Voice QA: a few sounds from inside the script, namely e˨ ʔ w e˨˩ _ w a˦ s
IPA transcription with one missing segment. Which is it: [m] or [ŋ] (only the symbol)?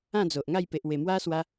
m